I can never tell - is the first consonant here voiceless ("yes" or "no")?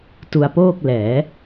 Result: yes